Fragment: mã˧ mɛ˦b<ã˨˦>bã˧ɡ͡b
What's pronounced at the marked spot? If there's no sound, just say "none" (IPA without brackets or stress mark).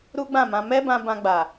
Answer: ã˧